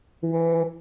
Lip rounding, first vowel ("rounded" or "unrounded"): rounded